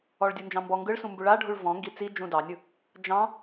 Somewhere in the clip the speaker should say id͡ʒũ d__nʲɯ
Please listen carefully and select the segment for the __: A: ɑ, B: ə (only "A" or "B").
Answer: A